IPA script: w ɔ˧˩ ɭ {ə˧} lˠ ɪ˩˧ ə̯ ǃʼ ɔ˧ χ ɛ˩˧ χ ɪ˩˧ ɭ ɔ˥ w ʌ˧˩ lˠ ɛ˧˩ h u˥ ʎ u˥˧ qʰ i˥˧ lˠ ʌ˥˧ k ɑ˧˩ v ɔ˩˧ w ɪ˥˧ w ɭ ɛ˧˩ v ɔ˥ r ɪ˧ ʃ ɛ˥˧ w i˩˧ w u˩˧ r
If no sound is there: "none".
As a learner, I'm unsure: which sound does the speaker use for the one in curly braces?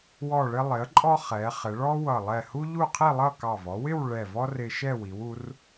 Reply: ɪ˧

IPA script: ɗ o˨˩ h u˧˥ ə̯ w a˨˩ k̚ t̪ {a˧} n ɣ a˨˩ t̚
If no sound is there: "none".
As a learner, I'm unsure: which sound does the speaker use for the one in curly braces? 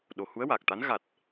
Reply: a˧˥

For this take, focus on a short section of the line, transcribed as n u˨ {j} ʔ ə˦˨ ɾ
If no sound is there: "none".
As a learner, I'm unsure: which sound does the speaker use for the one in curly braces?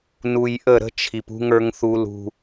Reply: j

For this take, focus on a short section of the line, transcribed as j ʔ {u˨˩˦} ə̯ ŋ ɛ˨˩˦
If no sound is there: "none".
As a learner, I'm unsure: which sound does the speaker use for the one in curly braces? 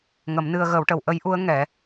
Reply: u˧˥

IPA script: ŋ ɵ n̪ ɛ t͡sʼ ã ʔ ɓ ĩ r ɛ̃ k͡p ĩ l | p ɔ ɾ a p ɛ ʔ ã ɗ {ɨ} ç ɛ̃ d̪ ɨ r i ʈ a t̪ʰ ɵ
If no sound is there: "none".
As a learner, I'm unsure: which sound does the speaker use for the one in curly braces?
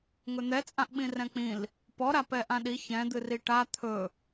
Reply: i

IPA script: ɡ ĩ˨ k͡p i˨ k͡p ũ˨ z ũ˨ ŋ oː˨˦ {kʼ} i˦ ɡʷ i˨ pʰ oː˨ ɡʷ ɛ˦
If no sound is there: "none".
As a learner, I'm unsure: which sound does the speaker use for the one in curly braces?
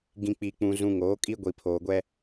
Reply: kʼ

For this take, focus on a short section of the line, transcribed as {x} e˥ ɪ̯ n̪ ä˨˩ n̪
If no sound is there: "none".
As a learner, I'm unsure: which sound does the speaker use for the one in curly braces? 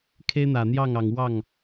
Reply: kʰ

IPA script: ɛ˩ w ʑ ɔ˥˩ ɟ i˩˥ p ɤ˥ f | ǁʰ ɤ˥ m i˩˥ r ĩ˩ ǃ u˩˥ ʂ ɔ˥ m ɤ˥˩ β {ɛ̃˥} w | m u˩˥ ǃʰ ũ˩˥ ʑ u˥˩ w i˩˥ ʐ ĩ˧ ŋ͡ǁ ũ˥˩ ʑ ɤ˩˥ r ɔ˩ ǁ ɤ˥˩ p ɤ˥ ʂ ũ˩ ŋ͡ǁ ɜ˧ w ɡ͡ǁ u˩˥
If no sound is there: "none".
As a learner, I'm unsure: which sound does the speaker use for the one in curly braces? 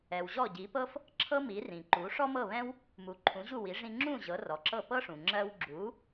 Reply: ɛ̃˥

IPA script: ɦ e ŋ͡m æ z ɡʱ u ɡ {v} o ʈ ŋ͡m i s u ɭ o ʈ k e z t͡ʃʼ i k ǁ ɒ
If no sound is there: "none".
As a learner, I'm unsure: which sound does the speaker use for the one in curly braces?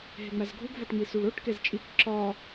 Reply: v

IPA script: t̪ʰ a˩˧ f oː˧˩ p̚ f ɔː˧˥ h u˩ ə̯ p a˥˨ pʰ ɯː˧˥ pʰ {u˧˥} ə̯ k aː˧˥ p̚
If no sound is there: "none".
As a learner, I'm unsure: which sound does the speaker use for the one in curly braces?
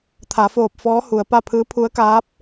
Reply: u˧˥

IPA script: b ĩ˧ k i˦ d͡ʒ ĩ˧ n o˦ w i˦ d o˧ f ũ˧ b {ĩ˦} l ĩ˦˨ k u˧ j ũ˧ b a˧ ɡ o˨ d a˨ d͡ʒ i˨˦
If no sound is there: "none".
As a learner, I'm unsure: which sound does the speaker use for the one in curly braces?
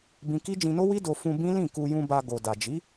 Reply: ĩ˦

